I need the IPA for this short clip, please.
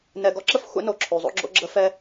n ɛ˨ ɡ ɔ˦ ǁ ə˦ f xʷ ɛ̰˦ n o˨ ǁʰ ʉ˨ zˤ o̰˦ ɡ͡ǁ o̰˦ ɡ͡ǁ ə˦ f ɛ˦

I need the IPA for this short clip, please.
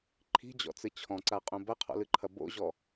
ǃʰ i̤ d͡ʑ ɔ̰ t͡s ɨ t͡ɕʰ ɔ̃ ǀ a qʼ ũ b ɐ qʰ ɔ̰ l ɨ ǃʰ ɐ b o̰ ʑ ɔ

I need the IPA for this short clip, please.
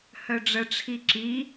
h œ ɖ͡ʐ ə ʈ͡ʂʰ i ǁ i

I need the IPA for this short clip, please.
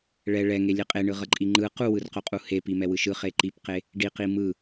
ɭ ɛ ɭ ɛ ŋ e lʲ e qʼ e ɳ ɯ ʁ ʌ ǃʼ i ŋ͡ǃ ɯ q u w ɯ r q o qʼ u h e p i m ɛ w ɯ ʃ ɯ χ e ǃ i p q e | ɖ i q i m ɯ

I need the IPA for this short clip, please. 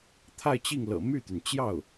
t̪ʰ a˥˧ ɪ̯ t͡ɕ i˥˩ ŋ l ɤ̰˨˩ m y˥˩ t̪ y˩ n t͡ɕ j ɑ˥˩ ʊ̯

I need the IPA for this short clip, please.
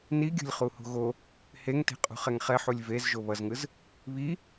n i ɡʲ o̤ lʲ χ u h o̤ ɣ o | h e ŋ t e̤ qʼ ṳ χ ɛ ŋ χ ɛ ħ u lʲ v e z ʒ o β ʌ z ŋ ɯ z | β i

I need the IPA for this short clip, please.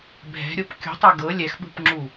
bʱ ɛ̤ ɾʲ o p kʲ ṳ tˤ a ɡ ɤ lʲ ɛ x ɓ ṳ p ŋ͡ǁ u

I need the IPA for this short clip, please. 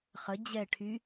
χ ə d͡ʑ ɛ ʈʰ y

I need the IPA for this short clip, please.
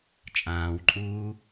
t͡ʃʼ ãː w ǃʼ uː

